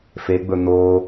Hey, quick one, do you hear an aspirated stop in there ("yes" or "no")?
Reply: no